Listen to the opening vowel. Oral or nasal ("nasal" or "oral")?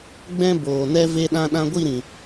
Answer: nasal